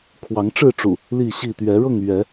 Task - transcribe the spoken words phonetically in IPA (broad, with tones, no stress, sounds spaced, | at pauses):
kʰ w ɑ˨˦ ŋ ʈ͡ʂ ɻ̩˥˨ ʈ͡ʂ ṵ˨˩ | l i˥˨ ɕ i˥˨ t̪ ɥ ɛ˨˦ ɻ ɤ˥˨ ŋ ɥ ɛ˨˦